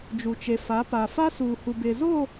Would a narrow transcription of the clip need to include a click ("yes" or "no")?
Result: no